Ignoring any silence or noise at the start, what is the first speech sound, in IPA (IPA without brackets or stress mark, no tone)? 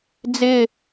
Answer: d͡z